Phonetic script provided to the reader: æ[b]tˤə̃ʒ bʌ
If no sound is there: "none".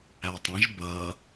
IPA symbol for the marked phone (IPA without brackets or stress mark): none